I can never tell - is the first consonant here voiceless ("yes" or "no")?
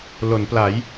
no